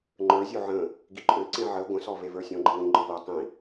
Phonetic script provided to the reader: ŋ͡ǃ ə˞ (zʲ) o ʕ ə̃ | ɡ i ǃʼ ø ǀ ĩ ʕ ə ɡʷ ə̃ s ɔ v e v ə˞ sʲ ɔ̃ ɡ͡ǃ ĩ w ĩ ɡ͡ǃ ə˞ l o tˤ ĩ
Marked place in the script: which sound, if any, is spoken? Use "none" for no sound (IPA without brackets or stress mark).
zʲ